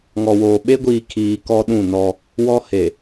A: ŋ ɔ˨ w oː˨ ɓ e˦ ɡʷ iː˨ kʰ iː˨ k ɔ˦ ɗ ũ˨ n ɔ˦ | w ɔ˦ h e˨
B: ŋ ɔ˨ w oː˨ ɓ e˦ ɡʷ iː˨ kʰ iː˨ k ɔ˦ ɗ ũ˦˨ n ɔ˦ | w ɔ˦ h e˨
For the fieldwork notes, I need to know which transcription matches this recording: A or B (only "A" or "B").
B